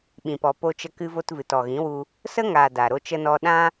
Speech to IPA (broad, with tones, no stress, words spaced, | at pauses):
ɓĩ˨pɔ˨po˧t͡ʃə˧ kɨ˧vo˧t vɨ˨tɔ˨ɣĩ˨˦wu˧ | sə˦ŋaː˨ da˨ ɾo˧t͡ʃə˧nɔ˧ ɗã˦